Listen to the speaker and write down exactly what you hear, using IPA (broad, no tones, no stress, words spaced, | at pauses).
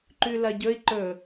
ǃʉlɐɟɵi̯ ǃɵ